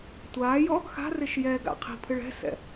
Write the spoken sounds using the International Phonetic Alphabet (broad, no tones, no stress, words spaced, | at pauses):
tʷaːjɔ | xa̤rɪʃ jɛɡa̰ qʰi̤pʰɨɭ ɛ̤sɛ̰